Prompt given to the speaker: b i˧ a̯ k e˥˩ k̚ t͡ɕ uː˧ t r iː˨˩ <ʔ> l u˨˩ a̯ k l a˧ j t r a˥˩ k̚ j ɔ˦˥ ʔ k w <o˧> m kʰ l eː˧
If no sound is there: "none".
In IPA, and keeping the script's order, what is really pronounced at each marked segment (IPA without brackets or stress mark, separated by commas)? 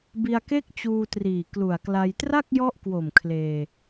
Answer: k, o˨˩